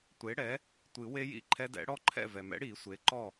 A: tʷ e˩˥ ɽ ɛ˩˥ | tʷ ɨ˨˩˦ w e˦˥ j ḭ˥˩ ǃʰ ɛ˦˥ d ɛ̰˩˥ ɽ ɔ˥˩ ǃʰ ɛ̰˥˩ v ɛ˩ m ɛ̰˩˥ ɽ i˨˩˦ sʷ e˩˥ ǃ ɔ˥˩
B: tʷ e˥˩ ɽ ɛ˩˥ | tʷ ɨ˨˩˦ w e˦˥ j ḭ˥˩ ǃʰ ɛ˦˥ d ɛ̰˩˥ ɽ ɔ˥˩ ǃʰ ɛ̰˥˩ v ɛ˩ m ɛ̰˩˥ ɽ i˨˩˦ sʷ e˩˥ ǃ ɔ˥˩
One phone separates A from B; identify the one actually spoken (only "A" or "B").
A